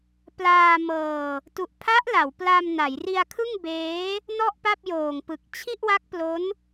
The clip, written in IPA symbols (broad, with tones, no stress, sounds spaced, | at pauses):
p l aː˧ m ɤː˧ | t u˨˩ ʔ pʰ a˦˥ ʔ l a˩˦ w p l a˧ m n a˩˦ j r i˧ a̯ kʰ ɯ˥˩ ŋ b eː˦˥ | n ɔ˥˩ ʔ p a˥˩ p̚ j oː˨˩ ŋ p ɯ˨˩ k̚ t͡ɕʰ i˥˩ ʔ w a˦˥ k̚ p l o˦˥ n